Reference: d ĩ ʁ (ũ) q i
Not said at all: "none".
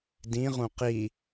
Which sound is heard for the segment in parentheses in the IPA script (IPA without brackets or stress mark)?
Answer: ũ